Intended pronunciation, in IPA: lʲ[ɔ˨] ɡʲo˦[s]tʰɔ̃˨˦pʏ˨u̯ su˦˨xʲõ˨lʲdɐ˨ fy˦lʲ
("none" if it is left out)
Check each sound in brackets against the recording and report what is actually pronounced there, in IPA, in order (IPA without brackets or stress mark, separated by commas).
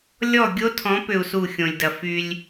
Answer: ɔ˦˨, none